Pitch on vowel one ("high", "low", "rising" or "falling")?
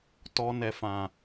low